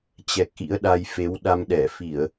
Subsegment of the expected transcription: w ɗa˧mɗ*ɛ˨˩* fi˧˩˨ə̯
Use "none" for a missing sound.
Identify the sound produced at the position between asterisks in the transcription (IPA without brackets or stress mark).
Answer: ɛ˧˩